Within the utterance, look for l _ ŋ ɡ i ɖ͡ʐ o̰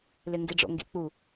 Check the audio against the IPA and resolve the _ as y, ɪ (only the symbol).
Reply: ɪ